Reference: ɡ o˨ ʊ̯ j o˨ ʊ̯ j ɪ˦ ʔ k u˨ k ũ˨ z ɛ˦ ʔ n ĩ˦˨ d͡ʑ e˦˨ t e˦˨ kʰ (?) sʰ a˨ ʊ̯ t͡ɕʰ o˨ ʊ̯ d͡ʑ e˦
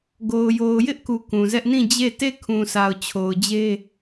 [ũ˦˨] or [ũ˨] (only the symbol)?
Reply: ũ˨